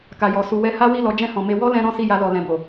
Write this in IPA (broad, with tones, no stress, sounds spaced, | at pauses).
k a˨ j ɔ˨ s u˨ w ɛ˧ h a˦ w i˦˨ l ɔ˨˦ d͡ʒ ɛ̃˦˨ h ɔ̃˨ m e˧ w ɔ˦ l ɛ̃˧ ɾ ɔ̃˦ s i˦˨ j a˧ l ɔ˨ l ɛ̃˨ b o˨